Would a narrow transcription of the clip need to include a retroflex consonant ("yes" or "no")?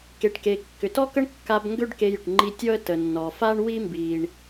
yes